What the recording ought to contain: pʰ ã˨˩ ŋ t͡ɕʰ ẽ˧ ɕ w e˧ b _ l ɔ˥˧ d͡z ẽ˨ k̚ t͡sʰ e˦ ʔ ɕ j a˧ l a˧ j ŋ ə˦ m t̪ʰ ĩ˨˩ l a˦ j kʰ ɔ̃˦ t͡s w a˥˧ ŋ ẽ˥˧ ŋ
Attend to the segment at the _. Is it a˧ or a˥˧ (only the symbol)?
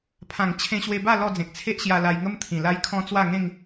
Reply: a˥˧